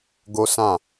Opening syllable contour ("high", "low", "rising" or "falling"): high